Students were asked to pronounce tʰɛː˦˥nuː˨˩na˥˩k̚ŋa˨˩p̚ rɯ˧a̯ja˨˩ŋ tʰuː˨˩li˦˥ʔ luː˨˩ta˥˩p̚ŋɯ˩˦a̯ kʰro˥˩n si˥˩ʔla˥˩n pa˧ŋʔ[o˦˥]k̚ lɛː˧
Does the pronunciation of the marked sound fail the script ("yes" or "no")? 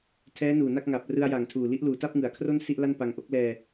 no